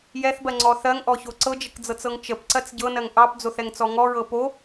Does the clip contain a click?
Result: yes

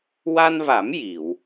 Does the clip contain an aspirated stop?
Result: no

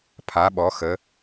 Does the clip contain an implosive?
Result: yes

